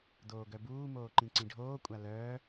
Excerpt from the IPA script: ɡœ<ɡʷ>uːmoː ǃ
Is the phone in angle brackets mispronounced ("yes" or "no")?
yes